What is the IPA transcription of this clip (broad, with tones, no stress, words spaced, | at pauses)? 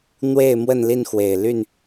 n̪we˥˨ɪ̯ mwə˥˨nli˥˨n xwe˨˩ɪ̯ ly˥˨n